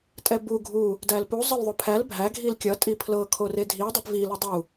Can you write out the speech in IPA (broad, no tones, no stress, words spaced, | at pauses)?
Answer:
tʼɛbu ɡʱu | dælpu zˤɤlðˤʊpʰæl bʱæ ɡʱilkʲʌ tʼipʰlɤ kʰoredʱi dˤɛpvi lʊdˤu